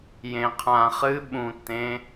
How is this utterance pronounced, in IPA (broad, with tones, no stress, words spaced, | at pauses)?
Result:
jẽ˨qʰã˨ χɨ˦ɓũ˨ tẽ˨˦